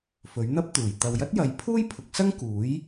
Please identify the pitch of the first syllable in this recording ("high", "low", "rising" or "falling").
rising